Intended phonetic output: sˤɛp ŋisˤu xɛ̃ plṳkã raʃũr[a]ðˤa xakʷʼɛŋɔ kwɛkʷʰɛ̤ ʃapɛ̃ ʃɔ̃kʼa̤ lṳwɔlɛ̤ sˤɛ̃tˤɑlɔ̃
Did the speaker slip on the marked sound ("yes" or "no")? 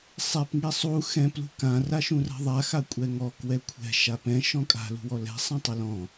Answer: yes